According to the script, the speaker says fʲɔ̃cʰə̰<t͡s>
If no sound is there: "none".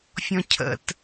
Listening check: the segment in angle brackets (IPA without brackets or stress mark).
t